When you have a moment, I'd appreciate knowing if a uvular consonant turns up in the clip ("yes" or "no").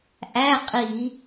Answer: yes